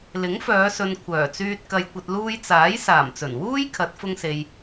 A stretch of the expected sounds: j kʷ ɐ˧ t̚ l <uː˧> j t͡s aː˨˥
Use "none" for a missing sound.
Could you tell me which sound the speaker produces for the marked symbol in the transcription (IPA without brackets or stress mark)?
uː˧